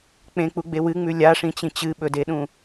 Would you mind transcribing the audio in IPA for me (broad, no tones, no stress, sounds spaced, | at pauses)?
k͡p ẽ k͡p u ɡ͡b e w ɨ ŋ͡m ʉ lʲ a ʂ ĩ t͡ɕ ĩ t͡ɕ ɨ ɓ ɵ d e ɗ ũ